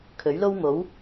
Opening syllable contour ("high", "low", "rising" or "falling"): rising